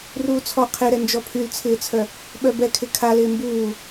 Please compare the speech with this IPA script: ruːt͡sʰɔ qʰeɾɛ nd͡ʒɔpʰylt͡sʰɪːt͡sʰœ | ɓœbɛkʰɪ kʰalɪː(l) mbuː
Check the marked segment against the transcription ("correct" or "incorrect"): incorrect